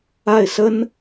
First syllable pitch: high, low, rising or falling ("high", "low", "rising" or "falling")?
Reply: falling